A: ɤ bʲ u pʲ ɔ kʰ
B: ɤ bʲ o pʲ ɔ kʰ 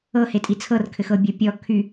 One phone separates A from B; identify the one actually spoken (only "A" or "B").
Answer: B